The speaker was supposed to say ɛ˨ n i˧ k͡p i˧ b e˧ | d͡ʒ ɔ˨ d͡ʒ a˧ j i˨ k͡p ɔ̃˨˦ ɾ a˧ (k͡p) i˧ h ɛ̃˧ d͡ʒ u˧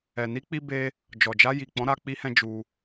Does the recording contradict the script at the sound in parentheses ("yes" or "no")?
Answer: no